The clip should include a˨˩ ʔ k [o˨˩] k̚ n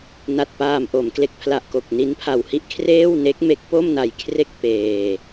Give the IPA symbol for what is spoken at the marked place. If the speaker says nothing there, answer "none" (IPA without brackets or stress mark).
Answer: o˨˩